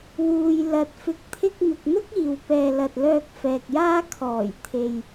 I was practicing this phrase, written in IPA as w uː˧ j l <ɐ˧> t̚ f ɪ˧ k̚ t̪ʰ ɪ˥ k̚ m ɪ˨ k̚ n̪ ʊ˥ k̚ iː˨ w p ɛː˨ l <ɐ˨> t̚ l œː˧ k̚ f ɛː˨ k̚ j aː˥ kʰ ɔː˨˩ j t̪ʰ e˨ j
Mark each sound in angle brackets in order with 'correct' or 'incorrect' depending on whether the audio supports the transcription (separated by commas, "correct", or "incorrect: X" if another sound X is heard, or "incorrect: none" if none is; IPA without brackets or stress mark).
correct, correct